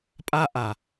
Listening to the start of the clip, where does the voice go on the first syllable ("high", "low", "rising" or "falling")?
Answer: high